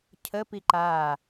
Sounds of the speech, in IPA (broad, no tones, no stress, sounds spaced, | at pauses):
cʰ ə p i ǃ aː